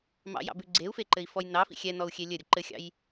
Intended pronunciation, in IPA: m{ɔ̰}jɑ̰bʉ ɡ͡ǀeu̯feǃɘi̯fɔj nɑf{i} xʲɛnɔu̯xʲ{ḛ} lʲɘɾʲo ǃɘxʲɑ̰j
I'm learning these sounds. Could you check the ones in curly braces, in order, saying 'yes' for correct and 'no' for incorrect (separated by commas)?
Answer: no, no, no